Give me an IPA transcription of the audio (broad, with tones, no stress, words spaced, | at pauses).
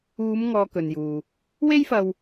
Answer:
uː˨˧mŋɔː˨ kɵ˨njuː˨ | we˥jfɐ˧w